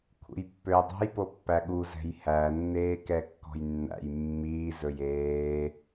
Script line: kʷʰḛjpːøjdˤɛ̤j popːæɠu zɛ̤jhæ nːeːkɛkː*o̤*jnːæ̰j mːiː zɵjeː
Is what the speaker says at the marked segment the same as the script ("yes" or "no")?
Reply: no